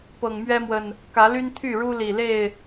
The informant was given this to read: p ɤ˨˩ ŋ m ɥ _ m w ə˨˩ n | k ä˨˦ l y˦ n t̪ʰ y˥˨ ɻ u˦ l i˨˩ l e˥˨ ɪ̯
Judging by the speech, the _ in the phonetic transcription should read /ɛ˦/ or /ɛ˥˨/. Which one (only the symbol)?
ɛ˦